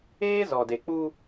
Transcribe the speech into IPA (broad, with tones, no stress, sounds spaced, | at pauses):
eː˦ z ɔ˨ d e˨ k͡p u˦